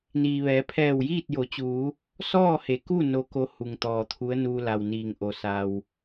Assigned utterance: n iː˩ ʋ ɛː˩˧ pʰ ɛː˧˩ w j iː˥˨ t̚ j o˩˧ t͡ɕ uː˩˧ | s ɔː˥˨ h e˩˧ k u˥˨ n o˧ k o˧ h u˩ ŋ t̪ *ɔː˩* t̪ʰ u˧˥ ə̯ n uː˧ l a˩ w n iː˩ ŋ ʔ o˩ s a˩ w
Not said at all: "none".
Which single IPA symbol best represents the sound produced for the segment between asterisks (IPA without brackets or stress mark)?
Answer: ɔː˩